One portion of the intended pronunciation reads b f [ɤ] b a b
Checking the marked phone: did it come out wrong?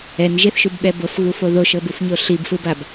yes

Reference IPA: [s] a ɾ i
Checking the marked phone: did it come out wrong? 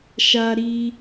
yes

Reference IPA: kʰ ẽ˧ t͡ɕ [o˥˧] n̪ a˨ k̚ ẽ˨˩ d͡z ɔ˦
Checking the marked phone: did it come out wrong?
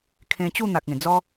yes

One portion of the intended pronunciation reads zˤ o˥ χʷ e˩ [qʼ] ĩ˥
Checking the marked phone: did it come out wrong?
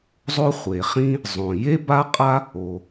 yes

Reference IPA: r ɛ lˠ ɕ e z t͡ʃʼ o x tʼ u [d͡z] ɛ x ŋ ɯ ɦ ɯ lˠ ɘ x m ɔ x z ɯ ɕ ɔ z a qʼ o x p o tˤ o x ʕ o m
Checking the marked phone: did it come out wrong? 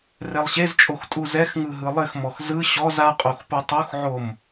yes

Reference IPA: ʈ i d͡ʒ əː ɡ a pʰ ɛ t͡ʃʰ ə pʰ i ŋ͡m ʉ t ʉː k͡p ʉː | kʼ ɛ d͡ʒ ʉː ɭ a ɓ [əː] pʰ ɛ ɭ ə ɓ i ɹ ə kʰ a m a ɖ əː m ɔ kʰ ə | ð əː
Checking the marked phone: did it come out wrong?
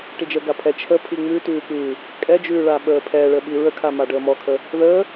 no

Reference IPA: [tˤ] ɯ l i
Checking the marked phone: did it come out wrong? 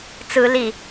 yes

